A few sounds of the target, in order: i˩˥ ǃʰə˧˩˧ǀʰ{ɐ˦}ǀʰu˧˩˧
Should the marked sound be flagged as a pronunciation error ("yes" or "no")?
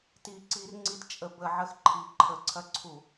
no